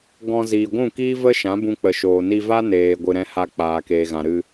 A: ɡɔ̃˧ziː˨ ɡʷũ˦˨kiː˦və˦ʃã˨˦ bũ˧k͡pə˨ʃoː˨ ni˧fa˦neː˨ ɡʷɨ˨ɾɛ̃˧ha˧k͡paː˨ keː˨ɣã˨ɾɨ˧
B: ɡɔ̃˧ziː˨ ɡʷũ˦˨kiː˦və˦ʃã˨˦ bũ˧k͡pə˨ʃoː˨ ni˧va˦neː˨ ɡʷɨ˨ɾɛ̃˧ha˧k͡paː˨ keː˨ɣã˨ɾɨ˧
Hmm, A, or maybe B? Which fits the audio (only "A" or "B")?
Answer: B